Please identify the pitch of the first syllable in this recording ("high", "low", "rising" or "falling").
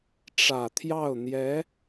low